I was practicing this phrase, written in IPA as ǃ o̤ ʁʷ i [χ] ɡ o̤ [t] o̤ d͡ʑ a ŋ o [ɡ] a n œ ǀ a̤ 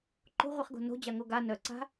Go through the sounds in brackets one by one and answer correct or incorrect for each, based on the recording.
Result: correct, incorrect, correct

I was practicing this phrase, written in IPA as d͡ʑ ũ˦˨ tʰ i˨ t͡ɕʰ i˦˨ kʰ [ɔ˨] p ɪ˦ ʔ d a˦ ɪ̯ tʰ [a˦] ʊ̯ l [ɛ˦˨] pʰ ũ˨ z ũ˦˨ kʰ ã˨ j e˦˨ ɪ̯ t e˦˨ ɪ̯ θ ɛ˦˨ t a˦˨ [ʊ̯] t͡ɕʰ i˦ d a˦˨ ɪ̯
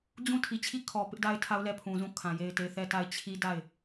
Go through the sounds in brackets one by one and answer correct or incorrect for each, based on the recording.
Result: correct, correct, correct, incorrect

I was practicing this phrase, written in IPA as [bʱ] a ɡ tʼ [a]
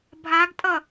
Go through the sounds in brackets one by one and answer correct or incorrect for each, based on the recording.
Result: correct, incorrect

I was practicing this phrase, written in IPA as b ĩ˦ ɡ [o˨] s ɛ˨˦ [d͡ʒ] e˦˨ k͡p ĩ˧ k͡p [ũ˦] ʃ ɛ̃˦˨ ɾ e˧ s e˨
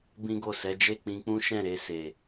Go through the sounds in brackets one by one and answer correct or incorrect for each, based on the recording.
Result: incorrect, correct, correct

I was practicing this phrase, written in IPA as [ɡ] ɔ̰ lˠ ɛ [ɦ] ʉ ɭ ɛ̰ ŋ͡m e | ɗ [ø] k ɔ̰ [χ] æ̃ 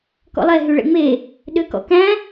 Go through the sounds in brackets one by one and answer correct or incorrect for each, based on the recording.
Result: incorrect, correct, correct, incorrect

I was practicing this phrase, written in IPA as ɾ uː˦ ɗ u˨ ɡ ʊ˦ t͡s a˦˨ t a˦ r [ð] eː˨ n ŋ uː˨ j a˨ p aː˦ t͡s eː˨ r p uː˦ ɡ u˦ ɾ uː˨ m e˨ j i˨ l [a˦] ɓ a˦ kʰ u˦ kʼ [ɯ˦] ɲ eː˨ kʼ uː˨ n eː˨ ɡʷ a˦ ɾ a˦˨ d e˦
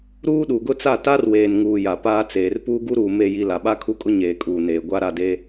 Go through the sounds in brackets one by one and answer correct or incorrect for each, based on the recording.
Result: incorrect, incorrect, incorrect

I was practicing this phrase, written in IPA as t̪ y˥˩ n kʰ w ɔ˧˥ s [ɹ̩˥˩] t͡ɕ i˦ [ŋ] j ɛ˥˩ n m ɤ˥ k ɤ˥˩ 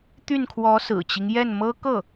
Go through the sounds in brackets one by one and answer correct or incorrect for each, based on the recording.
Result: incorrect, correct

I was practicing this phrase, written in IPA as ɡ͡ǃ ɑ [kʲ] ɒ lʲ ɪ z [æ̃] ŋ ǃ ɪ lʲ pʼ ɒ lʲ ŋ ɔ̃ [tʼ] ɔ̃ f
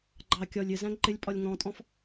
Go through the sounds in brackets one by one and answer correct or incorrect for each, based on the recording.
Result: correct, correct, correct

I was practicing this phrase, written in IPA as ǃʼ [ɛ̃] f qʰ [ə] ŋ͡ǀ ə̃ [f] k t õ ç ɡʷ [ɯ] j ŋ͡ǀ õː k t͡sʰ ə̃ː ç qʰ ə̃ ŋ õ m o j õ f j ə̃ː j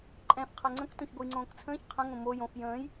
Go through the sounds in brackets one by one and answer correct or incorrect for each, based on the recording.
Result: correct, incorrect, incorrect, correct

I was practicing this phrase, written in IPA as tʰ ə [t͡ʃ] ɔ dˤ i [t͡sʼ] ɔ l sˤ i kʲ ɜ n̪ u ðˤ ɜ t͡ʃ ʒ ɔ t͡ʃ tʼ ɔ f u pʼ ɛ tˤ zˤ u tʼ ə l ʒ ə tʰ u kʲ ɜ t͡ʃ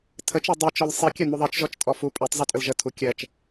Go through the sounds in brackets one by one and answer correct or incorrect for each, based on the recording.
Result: correct, incorrect

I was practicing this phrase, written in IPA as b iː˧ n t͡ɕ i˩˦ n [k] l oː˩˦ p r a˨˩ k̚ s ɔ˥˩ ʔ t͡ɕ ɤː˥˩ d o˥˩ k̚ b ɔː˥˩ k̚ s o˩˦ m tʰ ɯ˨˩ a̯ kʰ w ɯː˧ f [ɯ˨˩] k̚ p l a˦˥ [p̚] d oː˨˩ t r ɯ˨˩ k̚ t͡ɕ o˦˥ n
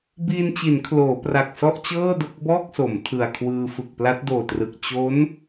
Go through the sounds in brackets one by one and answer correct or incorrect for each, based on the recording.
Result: incorrect, correct, incorrect

